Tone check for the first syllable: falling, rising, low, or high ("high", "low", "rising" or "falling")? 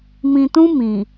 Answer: low